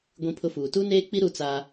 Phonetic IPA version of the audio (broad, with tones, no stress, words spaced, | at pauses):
ɡʷĩ˦pʰʊ˦fuː˨ tu˦neː˦k͡pi˦ ɾu˦t͡saː˦